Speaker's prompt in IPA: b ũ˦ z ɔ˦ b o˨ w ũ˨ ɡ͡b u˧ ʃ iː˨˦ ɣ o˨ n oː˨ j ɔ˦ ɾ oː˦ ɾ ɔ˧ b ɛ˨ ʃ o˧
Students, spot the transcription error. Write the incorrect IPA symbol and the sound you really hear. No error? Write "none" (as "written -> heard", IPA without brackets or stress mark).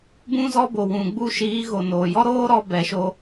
none